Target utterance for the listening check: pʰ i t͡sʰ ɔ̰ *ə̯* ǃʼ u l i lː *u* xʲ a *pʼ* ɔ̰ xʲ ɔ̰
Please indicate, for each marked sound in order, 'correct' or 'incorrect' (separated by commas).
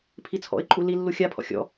incorrect, correct, incorrect